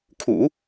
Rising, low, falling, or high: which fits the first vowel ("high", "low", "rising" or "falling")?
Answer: low